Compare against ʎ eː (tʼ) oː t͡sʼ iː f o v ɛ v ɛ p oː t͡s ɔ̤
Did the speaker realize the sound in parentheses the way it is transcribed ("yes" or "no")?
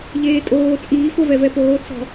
yes